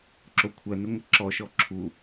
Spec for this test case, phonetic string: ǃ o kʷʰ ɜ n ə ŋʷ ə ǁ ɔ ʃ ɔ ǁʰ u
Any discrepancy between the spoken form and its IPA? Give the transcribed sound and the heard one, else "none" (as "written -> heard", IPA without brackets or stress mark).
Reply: ǃ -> ǁ